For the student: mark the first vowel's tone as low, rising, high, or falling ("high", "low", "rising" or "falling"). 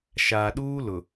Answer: low